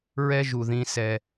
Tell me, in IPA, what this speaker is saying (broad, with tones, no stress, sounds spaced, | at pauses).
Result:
ɹ ɛ˦ ʒ u˨ ð ĩ˧ s ɛ˧